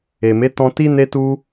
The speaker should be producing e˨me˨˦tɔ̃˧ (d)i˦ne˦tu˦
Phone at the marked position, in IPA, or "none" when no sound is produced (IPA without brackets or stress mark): t